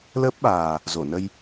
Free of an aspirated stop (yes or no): yes